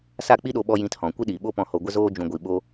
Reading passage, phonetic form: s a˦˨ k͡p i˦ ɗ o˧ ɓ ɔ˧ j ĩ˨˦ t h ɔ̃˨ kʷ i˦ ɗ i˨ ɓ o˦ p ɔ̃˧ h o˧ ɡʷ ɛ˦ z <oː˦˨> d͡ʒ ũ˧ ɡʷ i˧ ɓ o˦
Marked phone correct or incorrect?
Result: incorrect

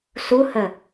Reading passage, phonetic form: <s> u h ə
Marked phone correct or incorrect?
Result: correct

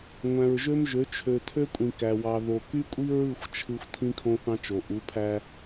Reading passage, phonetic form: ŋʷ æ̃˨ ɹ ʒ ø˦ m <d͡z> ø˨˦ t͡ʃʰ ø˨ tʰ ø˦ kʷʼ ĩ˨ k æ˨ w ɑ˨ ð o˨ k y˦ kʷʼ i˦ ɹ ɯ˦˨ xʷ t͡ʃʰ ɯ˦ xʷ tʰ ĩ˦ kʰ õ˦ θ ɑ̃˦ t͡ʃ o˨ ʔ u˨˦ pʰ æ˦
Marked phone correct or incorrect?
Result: incorrect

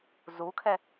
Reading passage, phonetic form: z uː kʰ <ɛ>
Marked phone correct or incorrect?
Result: correct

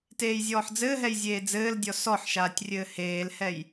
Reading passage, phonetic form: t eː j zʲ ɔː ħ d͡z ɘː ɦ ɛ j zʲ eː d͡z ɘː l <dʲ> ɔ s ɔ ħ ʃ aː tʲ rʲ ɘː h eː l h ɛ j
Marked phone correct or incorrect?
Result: correct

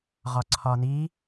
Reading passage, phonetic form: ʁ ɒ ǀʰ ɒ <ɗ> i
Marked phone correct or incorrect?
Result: incorrect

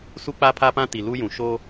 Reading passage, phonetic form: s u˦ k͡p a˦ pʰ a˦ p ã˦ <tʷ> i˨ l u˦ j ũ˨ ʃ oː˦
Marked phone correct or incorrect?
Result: incorrect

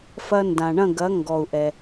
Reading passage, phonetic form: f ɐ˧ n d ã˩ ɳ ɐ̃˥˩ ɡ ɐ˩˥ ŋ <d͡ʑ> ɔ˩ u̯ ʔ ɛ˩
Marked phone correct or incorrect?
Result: incorrect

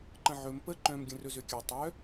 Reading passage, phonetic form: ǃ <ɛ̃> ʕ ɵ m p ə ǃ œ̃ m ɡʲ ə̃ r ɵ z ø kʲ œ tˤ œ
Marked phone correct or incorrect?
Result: incorrect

